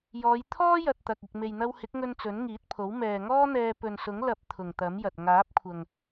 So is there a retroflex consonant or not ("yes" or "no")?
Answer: no